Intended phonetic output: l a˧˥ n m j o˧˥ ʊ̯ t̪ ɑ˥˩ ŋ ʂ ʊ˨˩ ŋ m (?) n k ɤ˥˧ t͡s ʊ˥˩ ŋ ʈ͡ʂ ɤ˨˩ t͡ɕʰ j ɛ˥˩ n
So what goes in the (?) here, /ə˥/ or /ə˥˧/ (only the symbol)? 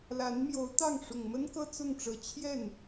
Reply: ə˥